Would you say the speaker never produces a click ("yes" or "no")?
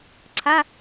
no